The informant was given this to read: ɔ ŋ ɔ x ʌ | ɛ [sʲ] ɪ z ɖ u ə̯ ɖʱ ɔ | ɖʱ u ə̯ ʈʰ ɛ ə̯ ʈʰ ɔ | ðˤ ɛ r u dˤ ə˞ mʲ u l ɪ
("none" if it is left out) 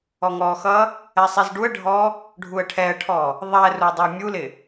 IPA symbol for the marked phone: sˤ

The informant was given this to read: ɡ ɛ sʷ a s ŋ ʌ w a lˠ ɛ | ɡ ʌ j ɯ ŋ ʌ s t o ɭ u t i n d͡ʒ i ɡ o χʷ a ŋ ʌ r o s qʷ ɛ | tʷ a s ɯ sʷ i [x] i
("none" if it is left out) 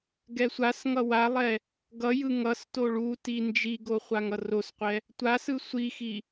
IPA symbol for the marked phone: x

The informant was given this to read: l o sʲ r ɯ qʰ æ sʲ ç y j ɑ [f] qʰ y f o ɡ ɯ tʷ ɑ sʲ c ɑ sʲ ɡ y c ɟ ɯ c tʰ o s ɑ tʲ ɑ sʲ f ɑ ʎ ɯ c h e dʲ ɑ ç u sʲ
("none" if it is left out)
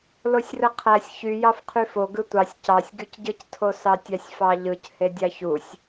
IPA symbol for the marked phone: f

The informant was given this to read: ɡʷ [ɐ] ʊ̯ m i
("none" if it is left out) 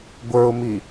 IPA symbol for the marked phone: ə˞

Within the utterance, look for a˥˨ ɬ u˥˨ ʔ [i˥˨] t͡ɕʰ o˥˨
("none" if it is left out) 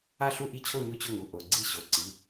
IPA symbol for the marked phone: i˥˨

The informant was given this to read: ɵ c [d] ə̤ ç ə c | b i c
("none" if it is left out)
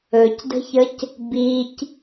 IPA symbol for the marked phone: d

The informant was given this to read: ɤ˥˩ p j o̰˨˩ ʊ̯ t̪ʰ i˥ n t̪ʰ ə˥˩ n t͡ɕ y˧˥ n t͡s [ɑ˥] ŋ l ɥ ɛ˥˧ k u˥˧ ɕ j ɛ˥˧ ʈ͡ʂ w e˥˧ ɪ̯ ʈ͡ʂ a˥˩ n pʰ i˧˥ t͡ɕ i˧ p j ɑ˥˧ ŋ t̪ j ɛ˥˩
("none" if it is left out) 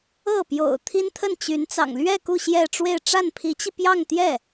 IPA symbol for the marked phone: ɑ̰˨˩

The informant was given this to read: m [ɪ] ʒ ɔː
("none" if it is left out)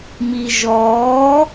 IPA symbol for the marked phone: i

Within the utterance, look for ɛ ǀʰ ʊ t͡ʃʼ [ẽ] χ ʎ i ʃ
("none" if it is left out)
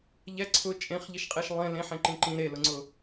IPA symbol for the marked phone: ẽ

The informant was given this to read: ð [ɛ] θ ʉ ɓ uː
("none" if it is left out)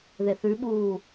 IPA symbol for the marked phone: e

